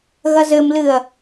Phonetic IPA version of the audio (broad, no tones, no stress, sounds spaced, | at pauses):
ɣ ɐ z ɘ m l ɨ ɐ̯